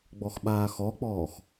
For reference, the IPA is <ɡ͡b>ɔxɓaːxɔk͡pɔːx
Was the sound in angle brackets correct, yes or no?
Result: yes